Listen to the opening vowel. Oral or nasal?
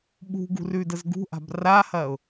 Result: oral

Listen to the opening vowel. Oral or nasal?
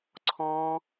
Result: nasal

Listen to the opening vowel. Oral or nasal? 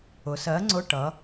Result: oral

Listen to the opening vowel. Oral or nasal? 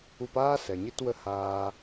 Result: oral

